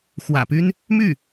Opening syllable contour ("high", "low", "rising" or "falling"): low